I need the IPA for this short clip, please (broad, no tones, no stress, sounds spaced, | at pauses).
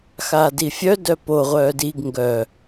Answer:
x aː d i fʲ œ d œ p o ʁʷ œː d i ɡ ŋ ɡ œ